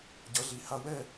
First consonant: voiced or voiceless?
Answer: voiced